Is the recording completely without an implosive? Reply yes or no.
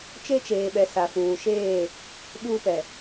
no